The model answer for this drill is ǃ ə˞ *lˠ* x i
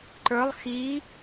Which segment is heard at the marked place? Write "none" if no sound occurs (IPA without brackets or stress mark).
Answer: lˠ